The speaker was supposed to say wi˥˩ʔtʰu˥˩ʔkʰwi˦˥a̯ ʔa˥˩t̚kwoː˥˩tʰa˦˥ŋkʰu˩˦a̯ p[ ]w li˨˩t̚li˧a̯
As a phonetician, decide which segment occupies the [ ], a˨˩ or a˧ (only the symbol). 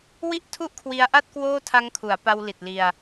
a˧